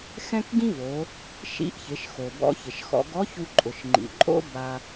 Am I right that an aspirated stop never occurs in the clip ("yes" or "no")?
yes